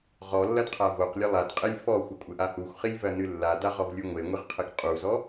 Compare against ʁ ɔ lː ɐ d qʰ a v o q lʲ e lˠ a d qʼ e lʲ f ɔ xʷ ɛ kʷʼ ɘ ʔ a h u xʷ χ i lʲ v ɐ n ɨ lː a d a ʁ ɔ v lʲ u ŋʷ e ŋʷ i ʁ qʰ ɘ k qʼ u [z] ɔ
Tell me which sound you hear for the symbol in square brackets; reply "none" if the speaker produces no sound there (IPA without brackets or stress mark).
z